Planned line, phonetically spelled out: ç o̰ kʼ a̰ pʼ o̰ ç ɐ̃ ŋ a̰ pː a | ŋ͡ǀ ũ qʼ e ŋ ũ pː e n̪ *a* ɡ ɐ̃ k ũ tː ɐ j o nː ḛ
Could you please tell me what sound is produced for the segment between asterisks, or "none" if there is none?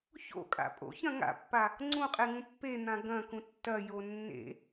ã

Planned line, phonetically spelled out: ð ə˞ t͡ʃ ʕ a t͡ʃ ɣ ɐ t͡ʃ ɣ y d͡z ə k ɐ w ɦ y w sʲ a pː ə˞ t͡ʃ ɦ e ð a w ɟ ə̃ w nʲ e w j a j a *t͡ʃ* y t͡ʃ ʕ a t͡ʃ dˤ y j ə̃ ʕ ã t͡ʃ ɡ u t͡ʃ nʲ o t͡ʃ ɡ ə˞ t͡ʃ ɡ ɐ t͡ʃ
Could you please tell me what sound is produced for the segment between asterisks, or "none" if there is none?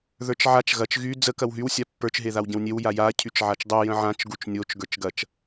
cʰ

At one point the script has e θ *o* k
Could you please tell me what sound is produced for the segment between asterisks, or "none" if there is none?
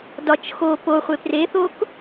o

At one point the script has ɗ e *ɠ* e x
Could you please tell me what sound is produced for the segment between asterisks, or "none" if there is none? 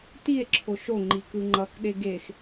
ɡ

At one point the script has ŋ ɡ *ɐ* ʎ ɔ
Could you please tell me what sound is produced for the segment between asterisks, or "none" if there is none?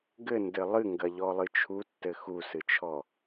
ɐ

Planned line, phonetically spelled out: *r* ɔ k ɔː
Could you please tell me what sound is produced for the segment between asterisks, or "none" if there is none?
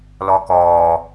l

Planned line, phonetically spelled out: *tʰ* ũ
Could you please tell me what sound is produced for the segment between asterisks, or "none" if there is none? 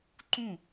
ǃ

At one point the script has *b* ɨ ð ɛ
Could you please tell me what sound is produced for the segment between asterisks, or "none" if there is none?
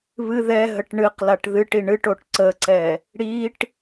β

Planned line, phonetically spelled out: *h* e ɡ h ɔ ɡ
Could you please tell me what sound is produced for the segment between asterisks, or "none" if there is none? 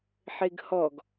ħ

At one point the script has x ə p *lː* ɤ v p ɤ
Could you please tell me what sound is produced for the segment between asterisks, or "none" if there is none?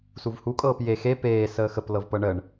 l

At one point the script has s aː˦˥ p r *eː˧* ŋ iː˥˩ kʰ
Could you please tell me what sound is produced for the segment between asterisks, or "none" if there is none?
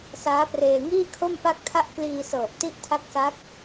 eː˧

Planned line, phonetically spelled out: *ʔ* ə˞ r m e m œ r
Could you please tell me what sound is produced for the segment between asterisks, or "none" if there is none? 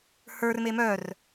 h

